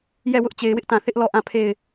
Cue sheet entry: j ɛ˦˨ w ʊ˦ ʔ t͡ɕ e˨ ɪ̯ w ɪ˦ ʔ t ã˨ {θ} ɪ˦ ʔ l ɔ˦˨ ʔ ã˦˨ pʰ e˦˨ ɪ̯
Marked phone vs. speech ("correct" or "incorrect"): correct